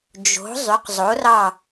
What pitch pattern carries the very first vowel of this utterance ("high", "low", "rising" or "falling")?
rising